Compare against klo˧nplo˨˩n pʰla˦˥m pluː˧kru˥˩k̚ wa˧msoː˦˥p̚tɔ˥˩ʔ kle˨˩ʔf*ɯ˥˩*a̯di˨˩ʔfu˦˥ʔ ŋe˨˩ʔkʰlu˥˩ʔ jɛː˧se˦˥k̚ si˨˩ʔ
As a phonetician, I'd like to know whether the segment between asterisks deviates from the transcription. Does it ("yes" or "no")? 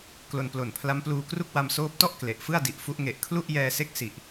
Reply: no